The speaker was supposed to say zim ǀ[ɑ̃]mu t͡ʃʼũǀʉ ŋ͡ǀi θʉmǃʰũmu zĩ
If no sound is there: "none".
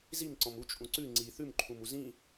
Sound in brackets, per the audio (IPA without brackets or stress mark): ɔ̃